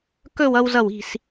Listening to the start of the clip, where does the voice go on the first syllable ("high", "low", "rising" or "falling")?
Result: falling